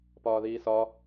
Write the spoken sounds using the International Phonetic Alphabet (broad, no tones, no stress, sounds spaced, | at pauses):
p ɒː ð iː s ɒ